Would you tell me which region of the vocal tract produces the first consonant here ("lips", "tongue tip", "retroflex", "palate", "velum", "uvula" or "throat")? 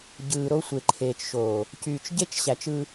palate